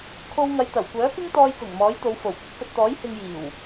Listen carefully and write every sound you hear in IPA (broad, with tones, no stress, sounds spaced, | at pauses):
kʰ o˧ w ŋ ɐ˨˧ j t̪ ɐ˨˩ w kʷ œː˨˥ k ɪ˥ ŋ t̪ ɔː˧ j k ʊ˨˩ ŋ m ɔː˨˥ j t̪ o˨˧ w f o˨˩ w kʷ ɐ˨˥ k̚ f ɵ˨ t̚ t̪ ɔː˨˥ j h ɪ˧ ŋ j iː˨˩ w